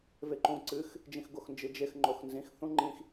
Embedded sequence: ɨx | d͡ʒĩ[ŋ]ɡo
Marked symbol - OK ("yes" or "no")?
no